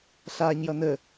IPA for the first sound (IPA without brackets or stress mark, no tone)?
ɬ